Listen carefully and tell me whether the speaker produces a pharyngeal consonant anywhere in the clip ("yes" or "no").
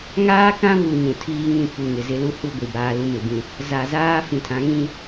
no